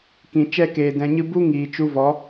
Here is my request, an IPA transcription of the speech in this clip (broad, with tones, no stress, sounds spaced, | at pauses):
k ĩ˨ t͡ʃ ɛ˦˨ k eː˨ d ɛ̃˨ ɲ ɨ˧ b u˦ ŋ iː˨ t͡ʃ u˧ v ɔ˨˦